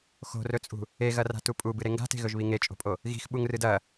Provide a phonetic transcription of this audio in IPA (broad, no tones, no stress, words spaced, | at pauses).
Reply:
xo̤rɵt͡sʼṳ | eɣɐ ra̤tupʼubɨ ɾeŋɡa̤te̤ɣɵʒ βiŋet͡ʃʼo̤pʼo | ɣi̤xɓuŋrɨd ɐ